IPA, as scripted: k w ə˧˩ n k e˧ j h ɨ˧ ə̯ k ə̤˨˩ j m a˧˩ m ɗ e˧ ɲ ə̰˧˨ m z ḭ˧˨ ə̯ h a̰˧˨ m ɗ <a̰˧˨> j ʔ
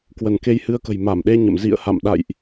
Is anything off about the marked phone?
no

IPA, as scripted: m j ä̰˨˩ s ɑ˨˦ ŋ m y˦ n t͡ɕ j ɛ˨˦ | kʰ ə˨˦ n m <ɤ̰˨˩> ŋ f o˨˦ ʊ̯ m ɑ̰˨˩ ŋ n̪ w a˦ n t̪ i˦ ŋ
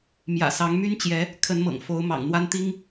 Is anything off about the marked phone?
no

